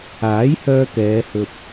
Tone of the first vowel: rising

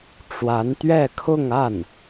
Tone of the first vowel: rising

